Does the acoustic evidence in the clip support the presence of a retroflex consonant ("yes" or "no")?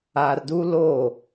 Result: no